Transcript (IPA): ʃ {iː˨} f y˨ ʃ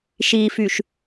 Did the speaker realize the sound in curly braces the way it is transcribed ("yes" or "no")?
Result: yes